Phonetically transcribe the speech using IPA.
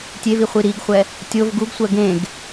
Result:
tʲ e v i χʷ i ɾ i ɡ χʷ ɛ | tʲ o v ɡ u ɡ sʷ ɜ ɡ ẽ ɡ

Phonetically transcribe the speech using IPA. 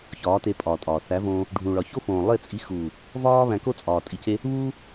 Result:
ç ɒː˨˦ t e˧ pʼ ɒː˨ tʼ ɒː˨ θ æ˨˦ v õː˧ | ɖʱ ũ˨ ɭ ɒ˨ ç o˦ f õː˨ lˠ e˦˨ t͡sʼ i˧ x uː˨ | v ɒː˦ β æ̃˧ k o˦ t͡sʼ ɒː˨ tʼ i˧ c e˦ | β uː˦

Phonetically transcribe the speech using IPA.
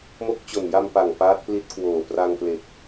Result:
m o˦˥ k̚ t͡ɕ o˨˩ n j a˧ m p a˨˩ ŋ p aː˦˥ t̚ p l i˦˥ t̚ k w oː˨˩ p r a˧ ŋ p l e˨˩ k̚

